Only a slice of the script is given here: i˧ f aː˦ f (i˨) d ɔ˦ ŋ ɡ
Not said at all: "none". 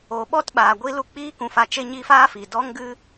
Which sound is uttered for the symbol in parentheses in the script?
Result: i˨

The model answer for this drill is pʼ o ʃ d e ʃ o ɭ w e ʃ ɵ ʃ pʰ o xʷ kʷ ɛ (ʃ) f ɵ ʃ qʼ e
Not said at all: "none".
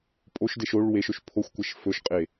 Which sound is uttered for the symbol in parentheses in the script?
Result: ʃ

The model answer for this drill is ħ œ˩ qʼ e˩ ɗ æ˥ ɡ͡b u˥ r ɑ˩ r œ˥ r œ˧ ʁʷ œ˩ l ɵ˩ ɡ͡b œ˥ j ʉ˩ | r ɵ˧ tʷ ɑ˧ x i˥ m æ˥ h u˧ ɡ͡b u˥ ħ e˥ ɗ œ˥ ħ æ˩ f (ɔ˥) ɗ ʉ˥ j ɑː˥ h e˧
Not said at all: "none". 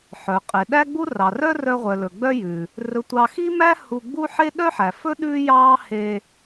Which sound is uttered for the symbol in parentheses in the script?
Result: ɵ˥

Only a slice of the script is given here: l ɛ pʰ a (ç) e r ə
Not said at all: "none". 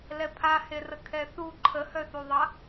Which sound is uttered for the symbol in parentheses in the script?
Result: h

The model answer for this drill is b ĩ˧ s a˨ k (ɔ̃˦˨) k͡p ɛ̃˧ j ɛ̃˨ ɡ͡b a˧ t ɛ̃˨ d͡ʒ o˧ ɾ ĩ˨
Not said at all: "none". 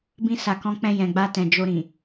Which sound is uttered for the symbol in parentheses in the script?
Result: ɔ̃˧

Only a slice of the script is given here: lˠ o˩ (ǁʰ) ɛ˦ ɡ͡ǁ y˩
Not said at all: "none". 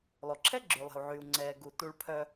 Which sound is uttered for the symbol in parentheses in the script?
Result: ǁʰ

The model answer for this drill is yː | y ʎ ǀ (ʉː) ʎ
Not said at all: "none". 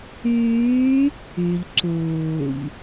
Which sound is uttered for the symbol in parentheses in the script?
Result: uː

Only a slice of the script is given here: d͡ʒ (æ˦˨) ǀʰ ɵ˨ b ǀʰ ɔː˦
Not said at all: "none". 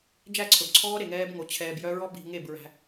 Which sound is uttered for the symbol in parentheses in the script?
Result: æ˦˨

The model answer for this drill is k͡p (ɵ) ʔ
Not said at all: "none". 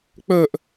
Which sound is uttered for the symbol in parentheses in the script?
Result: ɵ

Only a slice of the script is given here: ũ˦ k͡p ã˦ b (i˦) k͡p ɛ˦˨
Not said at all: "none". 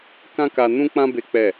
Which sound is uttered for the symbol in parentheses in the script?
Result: e˦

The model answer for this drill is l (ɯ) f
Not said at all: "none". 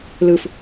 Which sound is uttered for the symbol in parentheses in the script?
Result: ɯ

